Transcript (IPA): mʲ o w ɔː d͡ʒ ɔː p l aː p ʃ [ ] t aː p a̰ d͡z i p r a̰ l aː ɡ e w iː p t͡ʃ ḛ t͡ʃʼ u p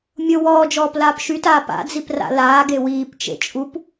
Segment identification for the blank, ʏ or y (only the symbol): y